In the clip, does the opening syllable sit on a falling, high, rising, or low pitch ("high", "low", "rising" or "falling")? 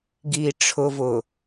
low